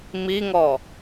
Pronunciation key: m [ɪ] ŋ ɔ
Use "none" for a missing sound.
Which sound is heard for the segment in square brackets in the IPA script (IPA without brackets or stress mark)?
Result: i